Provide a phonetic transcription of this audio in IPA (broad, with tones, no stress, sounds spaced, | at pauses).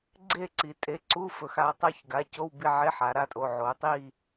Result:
ɡ͡ǀ e˦˨ ǀ i˩˧ tʼ e˩˧˩ ǀ u˧˥˧ f ɵ˩˧ x a˩˧ tˤ a˦˨ ç ɡ a˩˧˩ c o˧˥˧ w b i˦˨ ʕ e˧˥˧ ħ a˩˧ ɾ a˩˧˩ tʼ o˩˧˩ ʕ o˩˧ tˤ i˦˨